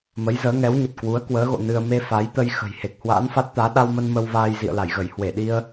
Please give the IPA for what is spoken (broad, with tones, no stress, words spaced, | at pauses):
mə˨˦jzəː˨˦ ŋɛ˨˦wɲə˨˩t̚ kwu˨˦ə̯kwəː˨˦ɣo̰˧˨ nɨ˧ə̯ me˧fa˨˦jt̪ə˧j xə̤˨˩jhe˨˩k̚ hwa̰ː˧˥nfa˦˥t̚t̪aː˨˦ ɗa˧wmə˧n mə˧wvaː˧j zḭ˧˨ə̯la˧˩jɣə˧˩j hwe˧˩ɗi˧ə̯